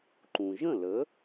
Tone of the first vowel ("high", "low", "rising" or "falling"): low